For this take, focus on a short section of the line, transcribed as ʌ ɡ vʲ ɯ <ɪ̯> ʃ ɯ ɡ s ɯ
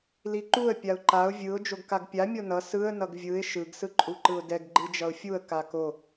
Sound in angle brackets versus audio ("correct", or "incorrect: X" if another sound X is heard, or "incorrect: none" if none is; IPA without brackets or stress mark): correct